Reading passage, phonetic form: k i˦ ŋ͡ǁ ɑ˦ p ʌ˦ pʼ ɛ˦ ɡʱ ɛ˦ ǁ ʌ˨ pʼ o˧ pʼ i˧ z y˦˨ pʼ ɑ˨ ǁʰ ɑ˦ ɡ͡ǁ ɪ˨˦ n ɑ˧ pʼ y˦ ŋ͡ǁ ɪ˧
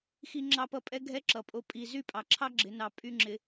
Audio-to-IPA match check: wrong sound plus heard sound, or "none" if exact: k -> x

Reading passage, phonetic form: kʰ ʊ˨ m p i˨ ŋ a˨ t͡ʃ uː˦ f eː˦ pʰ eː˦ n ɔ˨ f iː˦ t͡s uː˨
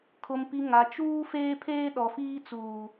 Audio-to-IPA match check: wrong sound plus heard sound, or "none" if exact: n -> ɗ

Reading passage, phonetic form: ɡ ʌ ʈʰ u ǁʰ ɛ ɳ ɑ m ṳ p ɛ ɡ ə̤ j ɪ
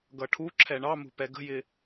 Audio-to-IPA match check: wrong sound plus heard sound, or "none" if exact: none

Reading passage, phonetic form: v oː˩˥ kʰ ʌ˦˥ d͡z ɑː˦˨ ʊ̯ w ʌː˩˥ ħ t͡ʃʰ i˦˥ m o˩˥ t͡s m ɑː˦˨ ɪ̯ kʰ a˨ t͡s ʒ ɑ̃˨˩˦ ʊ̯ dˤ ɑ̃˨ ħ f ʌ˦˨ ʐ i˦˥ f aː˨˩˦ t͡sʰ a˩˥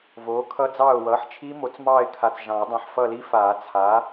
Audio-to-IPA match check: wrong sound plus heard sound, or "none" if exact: ʐ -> l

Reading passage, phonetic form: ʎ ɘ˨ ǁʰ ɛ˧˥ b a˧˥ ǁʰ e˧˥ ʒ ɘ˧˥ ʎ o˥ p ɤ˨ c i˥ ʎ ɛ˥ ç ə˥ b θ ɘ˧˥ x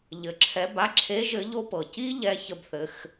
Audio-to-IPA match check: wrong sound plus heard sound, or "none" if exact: none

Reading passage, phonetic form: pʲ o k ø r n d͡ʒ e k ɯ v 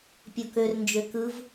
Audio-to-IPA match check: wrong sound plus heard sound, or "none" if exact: e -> ø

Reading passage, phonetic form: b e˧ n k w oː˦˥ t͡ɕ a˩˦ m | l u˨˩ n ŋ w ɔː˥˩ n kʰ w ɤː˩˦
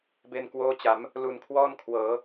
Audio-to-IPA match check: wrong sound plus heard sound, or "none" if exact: ŋ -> kʰ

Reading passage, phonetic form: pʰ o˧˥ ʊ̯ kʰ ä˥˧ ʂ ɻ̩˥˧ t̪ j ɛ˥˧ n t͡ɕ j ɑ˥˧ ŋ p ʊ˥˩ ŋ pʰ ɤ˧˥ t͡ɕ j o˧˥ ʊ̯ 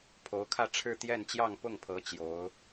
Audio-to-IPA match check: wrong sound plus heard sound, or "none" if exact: ʂ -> ʈ͡ʂʰ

